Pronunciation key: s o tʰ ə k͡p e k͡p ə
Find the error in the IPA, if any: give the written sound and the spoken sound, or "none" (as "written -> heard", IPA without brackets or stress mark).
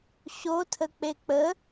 s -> ɕ